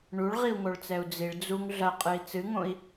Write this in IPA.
ɳ u ɭ ʁ i u̯ ŋ o ɭ t͡s ɛ u̯ d͡z i ɭ d͡z u ŋ ɮ ɐ qʼ ɨ i̯ t͡s ɨ ŋ õ i̯

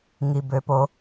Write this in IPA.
ŋ i˩ b ø˩˧ p o˩˧

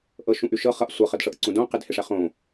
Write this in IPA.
ʔ ɤ ʃ ũ ʔ y ʃ ɤ χ ʌ ʔ sʷ ɤ χ ə d ʂ ɤ ʔ ǀ ũ d õ q ɪ d h ɪ ʂ ɛ χ õ

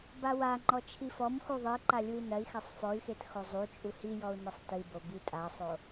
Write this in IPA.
b a w a ŋ͡ǃ ɔ t͡ʃʰ i f ɔ m x u ðˤ ɨ i̯ ǃ a lʲ u i̯ n ɐ i̯ x a sˤ f ɔ y̯ x e t x o zˤ u t͡ʃʼ u h i j ɔ u̯ n ɐ sˤ t ɨ b o b i tʼ a sˤ o

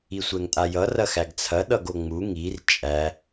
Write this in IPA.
i sʷ ɛ ŋ tʼ a j ʌ r ɐ x æ ɡ t͡sʰ ɐ ɗ ʌ ɡ o ŋ͡m u ŋ i r t͡ʃʼ æ

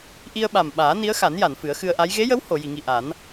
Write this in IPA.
ʔ i˧ ə̯ ɓ a˨˩ m ɓ aː˨˩˦ n i˧˥ ə̯ x a˨˩˦ n j a˨˩˨ n f ɨ˨˩˦ ə̯ x ɨ˧ ə̯ ʔ a˧˥ j ɣ e˧˥ j ə˧˥ w h o˨˩˨ j i˨˩˨ ŋ i˨˩ ʔ a˨˩˦ n

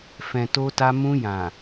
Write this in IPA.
f ɛ̃˨ t o˧ t a˧ m ũ˧ j ã˨

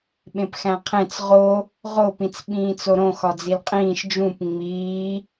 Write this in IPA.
ɓ ẽ p x æ̃ qʰ ẽ t͡s ʁ o | ʁ o p ĩ t͡s ɓ ĩː t͡s o ɾ õ x ɒ d͡z i l qʼ ĩː ʃ d͡ʒ ũ p ŋ͡m iː

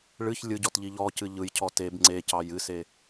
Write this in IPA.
ɭ ɨ ç lʲ ɯ ɟ ɔ t ʎ i ʎ ɔ c ɨ ʎ ɯ j cʰ ɔ t e b ŋ͡ǀ e c ɑ j ɨ s e

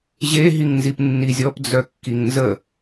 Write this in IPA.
ʑ e ɦ i ŋ n z i p nː i zʲ ɔ p d͡z œ kː i ŋ n z ə

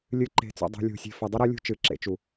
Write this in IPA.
lʲ ɨ˨˦ ǃ e̤˨ t͡s o̰˨ dˤ ṳ˨ lʲ o̤˨ sʲ e̤˨ f ɐ˨ dˤ ɨ˦ ɾ ɐ˦ lʲ ṳ˦˨ t͡ʃ ɨː˨ ǁ ḛ˨ t͡ʃ u˨

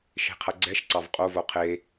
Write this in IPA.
ʃ e̤ qʰ ɐ ɡ͡ǀ ɛ ʃ ǀ ɑ v qʼ o v o qʰ e

